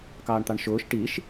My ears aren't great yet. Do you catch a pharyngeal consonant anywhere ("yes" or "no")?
no